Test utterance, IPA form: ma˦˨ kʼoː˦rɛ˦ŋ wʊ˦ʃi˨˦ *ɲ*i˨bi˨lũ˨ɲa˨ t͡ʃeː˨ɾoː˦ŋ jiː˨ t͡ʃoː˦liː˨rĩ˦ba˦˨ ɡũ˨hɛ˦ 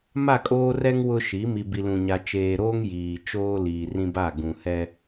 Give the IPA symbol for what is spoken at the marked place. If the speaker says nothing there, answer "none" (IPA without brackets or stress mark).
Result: m